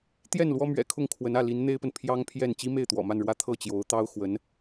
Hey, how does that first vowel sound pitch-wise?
falling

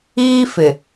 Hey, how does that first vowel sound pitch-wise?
high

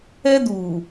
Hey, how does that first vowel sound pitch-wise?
high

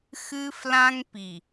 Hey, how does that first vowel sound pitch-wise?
high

